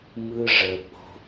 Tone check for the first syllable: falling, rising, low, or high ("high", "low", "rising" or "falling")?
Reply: high